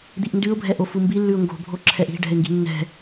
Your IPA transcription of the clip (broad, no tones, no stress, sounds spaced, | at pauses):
d̪ i ʔ n d ʉ ʊ̯ bʱ ɛ ʔ o f u m b i lː ʉ ʊ̯ ŋ ɡ o̤ bʱ o ǁʰ ɛ ʔ i̤ ɖ ɛ̤ ɪ̯ ŋ ɡ i̤ nː ɛ̤